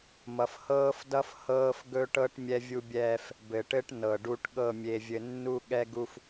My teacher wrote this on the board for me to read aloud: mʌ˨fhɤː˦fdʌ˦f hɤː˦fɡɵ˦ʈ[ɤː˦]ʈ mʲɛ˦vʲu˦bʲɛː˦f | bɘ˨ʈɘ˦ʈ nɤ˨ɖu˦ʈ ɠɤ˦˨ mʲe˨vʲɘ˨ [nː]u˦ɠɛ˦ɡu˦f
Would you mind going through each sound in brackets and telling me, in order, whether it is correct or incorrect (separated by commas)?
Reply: incorrect, correct